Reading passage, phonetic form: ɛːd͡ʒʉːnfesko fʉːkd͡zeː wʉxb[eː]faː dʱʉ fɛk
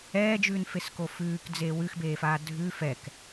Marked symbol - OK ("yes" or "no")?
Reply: yes